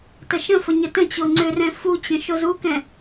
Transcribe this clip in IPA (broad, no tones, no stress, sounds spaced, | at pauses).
t ə ʃ ə̃ f ə ɲ ə t ə̃ t͡ɕ o ŋ͡ǀ ʏ r ɛ̃ f u t͡ɕ ə̃ ʃ o z u k ɛ̃